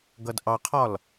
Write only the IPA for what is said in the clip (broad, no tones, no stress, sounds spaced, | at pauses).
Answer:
ɡ ʌ d ʔ ɑ qʰ ɒ l